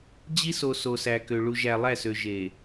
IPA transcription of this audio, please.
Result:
d͡ʑ i˦ s o˨ s o˨ s æ˨ k ø˨ ɭ u˨ ʒ æ˨ lˠ æ˦˨ s ø˨ ʒ e˨

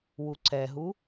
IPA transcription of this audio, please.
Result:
w u ǀ ɛ ɦ u

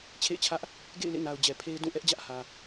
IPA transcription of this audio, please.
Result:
t͡ɕʰ ḛ˦˨ ɪ̯ t͡ɕʰ ä˦ ʔ | ɡ ḛ˦˨ ɪ̯ l ḛ˦˨ n a˨ ʊ̯ d͡ʑ ɛ˨ pʰ e˦ ɪ̯ d ũ˦˨ ʔ ɛ˦ ʔ d͡ʑ ä˦ ʔ h ä˨

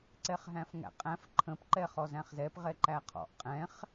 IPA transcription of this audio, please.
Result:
ǀ ɛ χ ɦ æ̃ f ŋ æ̰ qʼ æ̃ f ǃʰ ə̃ p ǃ ɛ χ ɔ z æ̃ χ z ɛ p ʁ ɛ ǃ æ qʰ ɔ̰ ʔ qʼ ɛ̃ χ

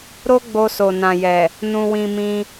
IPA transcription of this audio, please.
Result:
ɾ o˦ ɡ͡b o˧ s o˨ n ã˨ j ɛ˨ | n ũ˧ w ĩ˧ m ĩ˧

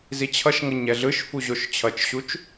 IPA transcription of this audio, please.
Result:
z i t͡ɕʰ ʌ ʃ ŋ ʌ ɲ ɛ ɮ ɯ ʃ f u ʑ o ʃ t͡ɕʰ ʌ t͡ʃ ɕ u t͡ʃ

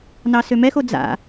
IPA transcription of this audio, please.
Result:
n ɑ s ø m ɛ x o d͡z a̰

